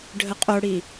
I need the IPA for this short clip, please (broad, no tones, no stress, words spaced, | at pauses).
ɖʱəqʼoɽi